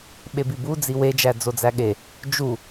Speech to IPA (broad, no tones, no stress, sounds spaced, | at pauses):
ɓ e b i b u d͡z i w e d͡ʒ æ d͡z o d͡z æ ɠ e | d͡ʒ u